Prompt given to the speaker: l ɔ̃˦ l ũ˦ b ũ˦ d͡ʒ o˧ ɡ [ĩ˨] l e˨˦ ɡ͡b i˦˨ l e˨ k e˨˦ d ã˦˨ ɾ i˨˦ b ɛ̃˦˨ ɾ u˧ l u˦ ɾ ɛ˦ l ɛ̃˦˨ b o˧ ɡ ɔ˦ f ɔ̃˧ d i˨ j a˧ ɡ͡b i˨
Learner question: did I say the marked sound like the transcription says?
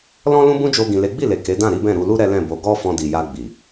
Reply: yes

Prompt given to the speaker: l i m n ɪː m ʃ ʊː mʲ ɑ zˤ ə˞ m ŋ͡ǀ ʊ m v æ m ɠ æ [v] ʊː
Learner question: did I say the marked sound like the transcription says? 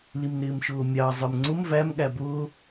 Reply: no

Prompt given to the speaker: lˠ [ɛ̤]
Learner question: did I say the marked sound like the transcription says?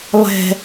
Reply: yes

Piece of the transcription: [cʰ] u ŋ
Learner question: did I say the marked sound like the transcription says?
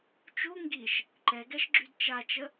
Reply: no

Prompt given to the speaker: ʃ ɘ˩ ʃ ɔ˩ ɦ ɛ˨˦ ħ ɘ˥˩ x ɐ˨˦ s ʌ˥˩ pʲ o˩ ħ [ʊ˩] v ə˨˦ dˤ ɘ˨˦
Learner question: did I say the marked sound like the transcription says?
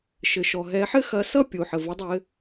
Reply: no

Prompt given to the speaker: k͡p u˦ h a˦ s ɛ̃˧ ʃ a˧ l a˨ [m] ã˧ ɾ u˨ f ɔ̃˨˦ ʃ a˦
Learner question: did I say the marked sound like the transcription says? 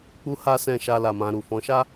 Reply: yes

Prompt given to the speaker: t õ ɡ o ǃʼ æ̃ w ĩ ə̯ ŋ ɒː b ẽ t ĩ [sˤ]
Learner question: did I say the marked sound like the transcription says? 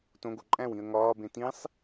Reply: yes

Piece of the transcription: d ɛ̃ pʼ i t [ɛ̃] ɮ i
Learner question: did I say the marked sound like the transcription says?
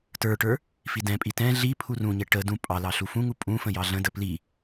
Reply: yes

